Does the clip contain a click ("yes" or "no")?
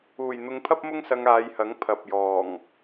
no